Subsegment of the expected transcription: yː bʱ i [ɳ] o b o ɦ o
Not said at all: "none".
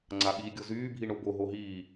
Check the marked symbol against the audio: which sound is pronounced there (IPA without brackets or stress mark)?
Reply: ɳ